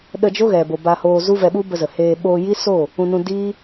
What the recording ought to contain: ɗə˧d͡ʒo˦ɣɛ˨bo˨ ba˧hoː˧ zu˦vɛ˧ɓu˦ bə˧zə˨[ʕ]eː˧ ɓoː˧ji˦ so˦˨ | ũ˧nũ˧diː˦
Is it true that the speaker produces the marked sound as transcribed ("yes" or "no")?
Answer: no